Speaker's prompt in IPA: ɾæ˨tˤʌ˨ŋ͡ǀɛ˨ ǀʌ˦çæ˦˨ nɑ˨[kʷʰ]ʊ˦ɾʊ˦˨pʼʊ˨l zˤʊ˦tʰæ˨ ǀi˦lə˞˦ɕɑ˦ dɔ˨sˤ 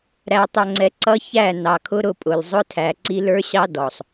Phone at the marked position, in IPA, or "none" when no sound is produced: kʰ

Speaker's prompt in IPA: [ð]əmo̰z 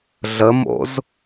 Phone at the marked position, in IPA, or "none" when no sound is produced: ɮ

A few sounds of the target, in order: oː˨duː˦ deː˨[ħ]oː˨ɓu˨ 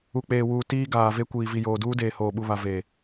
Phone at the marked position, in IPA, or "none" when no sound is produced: h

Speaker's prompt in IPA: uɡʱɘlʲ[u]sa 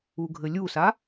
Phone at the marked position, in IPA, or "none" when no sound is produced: u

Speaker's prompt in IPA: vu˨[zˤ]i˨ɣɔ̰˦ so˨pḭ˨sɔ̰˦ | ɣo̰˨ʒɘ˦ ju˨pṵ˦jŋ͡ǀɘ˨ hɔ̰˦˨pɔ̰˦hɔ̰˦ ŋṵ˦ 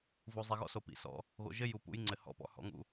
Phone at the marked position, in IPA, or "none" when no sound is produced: zˤ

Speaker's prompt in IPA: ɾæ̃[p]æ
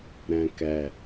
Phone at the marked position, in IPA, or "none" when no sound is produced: k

